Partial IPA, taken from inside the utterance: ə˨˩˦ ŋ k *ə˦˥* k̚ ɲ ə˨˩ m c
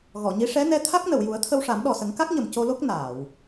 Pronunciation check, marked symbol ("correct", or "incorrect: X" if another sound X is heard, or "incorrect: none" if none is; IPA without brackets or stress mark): incorrect: a˦˥